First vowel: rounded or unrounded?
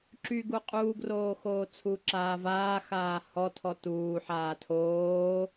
rounded